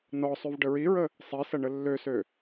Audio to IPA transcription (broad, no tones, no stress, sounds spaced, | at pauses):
n ɔ sˤ y v ɖ ə ɹ i ɹ ə | sˤ i s ɐ ɳ ə lː ø s ø